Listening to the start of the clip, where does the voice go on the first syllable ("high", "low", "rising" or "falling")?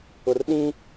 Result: low